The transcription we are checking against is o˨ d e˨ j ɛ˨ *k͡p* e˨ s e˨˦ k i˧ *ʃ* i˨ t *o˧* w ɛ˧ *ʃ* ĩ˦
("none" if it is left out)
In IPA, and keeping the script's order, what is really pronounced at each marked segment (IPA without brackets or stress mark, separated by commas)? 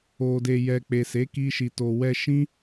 k͡p, ʃ, o˨, ʃ